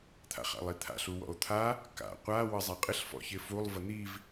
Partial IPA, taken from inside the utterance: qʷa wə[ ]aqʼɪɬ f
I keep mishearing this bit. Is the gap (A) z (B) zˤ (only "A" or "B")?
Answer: B